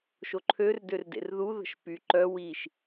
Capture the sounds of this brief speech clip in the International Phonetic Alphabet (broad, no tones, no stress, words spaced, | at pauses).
ʃoǃʰør dørdḛrðu ðə̤ʃpy ǃœ wiʃ